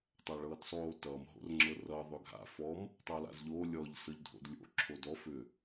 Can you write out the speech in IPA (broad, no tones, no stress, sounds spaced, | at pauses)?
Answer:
tˤ a ɭ ɤː d sˤ oː t ʌː m ɦ o̰ r ŋ͡ǁ ɤ r ʌ ðˤ ʏ ɡʱ a̰ f ɔ m | tˤ ʌː l a̰ z ʎ oː lʲ ɔ ʎ s ɤ ʎ dʱ o̰ d lʲ o̰ ǁʰ o d ɔ f ʏ